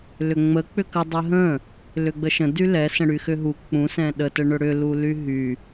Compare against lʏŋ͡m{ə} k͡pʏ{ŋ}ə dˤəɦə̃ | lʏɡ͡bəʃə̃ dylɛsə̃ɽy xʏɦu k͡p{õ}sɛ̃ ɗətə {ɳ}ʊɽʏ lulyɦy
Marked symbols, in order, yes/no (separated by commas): yes, no, no, yes